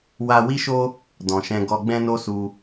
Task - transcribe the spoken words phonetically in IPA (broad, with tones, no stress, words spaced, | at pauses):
wa˦ wi˦ʃo˦ | dɔ̃˨ʃɛ̃˧ ɡɔ˧ɡ͡bɛ̃˦no˦ su˧